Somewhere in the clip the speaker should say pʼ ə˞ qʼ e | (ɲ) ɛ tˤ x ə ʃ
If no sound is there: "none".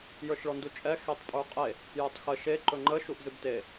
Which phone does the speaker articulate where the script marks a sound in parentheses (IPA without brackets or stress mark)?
j